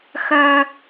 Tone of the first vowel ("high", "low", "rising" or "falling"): high